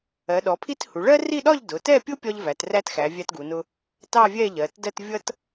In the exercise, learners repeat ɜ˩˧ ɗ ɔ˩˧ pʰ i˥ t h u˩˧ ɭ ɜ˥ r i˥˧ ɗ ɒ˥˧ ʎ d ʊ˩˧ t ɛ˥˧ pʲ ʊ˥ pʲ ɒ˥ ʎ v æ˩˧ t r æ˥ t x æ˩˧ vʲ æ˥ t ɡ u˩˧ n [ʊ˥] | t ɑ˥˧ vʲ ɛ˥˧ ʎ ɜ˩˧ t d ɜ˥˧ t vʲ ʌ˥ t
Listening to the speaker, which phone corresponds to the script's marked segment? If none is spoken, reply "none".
ʊ˥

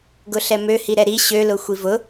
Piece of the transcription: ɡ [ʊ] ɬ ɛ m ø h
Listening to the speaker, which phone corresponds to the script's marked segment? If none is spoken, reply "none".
ʊ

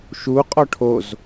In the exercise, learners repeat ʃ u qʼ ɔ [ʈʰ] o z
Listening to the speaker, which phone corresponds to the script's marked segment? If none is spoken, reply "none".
ʈʰ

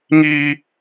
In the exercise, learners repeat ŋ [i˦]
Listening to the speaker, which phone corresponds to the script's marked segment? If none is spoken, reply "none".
i˦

